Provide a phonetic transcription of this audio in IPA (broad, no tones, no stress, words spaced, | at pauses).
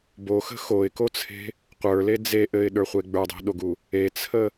boxə̤ xoɪ̯kot͡sʰe̤ | qʷə˞le d͡ze ʔɘɪ̯ɗə˞χʷe ɡ͡bə˞dˤe̤ɗoɡu | et͡sʰə